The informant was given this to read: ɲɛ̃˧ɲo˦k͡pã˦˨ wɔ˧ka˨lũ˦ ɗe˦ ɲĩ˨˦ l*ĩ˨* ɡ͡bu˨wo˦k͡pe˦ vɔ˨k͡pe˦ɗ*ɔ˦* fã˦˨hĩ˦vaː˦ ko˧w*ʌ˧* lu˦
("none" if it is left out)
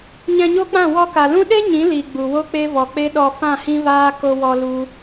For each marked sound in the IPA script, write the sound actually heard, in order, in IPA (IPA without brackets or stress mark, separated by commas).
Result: i˨, ɔ˧, ɔ˧